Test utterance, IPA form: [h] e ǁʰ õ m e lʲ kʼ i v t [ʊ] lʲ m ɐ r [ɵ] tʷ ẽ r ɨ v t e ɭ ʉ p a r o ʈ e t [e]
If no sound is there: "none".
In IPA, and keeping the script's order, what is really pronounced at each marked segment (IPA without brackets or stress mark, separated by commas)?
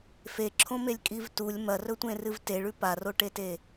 f, u, ɵ, e